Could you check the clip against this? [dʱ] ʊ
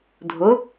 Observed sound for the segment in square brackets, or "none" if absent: dʱ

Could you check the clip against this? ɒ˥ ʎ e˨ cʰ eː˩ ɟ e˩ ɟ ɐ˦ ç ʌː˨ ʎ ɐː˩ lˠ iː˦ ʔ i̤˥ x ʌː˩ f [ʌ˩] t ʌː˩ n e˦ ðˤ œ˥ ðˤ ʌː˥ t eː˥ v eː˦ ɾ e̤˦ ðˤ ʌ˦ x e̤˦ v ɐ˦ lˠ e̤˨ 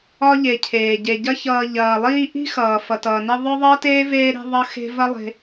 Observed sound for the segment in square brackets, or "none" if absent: ʌ˩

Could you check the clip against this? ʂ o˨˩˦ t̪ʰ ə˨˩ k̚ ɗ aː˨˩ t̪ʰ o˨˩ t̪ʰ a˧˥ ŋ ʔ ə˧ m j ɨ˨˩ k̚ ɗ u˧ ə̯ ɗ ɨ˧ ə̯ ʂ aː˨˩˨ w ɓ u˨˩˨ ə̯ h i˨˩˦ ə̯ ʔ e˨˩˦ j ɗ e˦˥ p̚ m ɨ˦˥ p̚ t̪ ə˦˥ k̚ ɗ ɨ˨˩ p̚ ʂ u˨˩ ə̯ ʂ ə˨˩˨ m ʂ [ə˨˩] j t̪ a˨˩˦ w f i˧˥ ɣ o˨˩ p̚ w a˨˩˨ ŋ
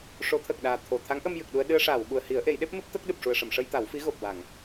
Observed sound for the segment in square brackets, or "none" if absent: ə˧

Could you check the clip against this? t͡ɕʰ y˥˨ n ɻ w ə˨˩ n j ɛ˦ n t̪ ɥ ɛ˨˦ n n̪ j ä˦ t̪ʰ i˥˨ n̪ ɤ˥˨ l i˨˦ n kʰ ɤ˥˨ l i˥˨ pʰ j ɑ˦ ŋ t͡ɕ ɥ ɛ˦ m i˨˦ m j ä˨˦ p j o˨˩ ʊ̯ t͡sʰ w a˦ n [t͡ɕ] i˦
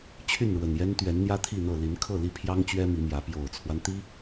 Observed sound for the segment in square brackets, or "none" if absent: t̪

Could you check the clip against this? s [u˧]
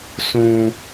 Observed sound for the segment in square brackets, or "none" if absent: ũ˧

